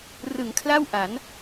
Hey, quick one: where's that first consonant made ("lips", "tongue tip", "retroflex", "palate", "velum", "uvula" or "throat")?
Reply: tongue tip